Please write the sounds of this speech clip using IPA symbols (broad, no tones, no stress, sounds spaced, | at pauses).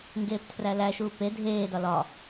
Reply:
ŋ ɡ eː p tʰ r æ l æ ʃ uː p e dʱ eː d ɒ l ɒ